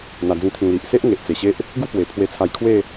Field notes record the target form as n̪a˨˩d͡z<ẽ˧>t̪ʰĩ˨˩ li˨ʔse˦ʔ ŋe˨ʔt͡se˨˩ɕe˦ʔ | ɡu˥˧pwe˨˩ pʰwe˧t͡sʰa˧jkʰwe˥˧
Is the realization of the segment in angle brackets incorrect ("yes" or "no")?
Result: yes